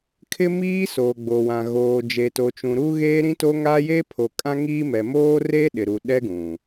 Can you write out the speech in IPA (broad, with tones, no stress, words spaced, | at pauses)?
kʰɪ˦miː˦ soː˨ɡ͡bo˨wã˨ ɣoː˨d͡ʒe˨to˨t͡ʃũ˨ ɾu˦ɣeː˦ɾĩ˦to˦ ŋa˦je˦pʰo˨ kʼã˦ŋiː˦ mɛ˨moː˦re˦ ɗɪ˨ɾu˨ɗɛ˦ɡũ˨